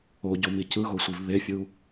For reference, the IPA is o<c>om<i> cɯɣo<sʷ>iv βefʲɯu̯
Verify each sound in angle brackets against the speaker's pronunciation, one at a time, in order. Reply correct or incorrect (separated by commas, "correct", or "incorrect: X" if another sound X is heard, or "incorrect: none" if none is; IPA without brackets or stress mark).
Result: incorrect: ɟ, correct, correct